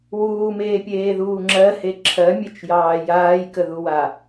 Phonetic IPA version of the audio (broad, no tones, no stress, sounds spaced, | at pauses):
w uː m eː pʲ eː ð uː ŋ͡ǁ ɜ h e ǁʰ ɜ mʲ e t͡ʃ j ɑː j aː j k ə ð u w a